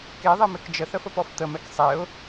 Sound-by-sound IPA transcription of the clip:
k e ðˤ e m e k d͡ʒ ə θ ə f ə p ɔ f t̪ ə m ɛ k sˤ e ʊ̯

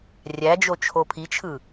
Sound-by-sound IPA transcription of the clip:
rʲ æ d͡ʒ o t͡ʃʰ o pʰ i t͡ʃʰ ɯ

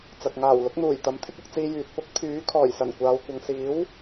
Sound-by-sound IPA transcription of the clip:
t͡s ɐ˨ k̚ ŋ aː˨˩ w l ʊ˨˥ k̚ n̪ uː˨˩ j t̪ ɐ˨˥ m t̪ʰ ɪ˥ k̚ ʊ˧ k̚ t͡s iː˧ j yː˨ t̚ p ʊ˥ k̚ t̪ʰ yː˨˥ kʰ ɔː˨˩ j s ɐ˨˩ n kʷ aː˨˧ w kʷ ɐ˨ ŋ s iː˨˥ w

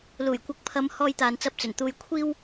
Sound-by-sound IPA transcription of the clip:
l uː˨˩ j kʷ ɐ˨ k̚ pʰ ɐ˨˧ m h ɔː˧ j t̪ aː˨ n t͡s ɐ˨˥ p̚ t͡s ɵ˨˩ n t̪ uː˧ j kʷʰ iː˥ w

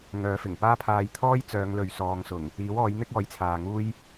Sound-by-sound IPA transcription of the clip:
ŋ œː˨˧ f ɪ˨˩ ŋ p aː˥ pʰ aː˧ j t̪ʰ ɔː˥ j t͡s œː˨˧ ŋ l ɵ˨ ɥ s ɔː˨˧ ŋ s ʊ˨˩ ŋ | iː˨˥ w ɔː˨˥ j n̪ ɪ˥ k̚ ɔː˨˥ j t͡sʰ aː˨ ŋ uː˥ j

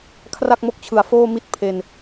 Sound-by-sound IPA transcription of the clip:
kʰ r a˥˩ k̚ m o˦˥ k̚ t͡ɕʰ ɯ˨˩ a̯ f oː˥˩ m i˥˩ t̚ pʰ e˧ n

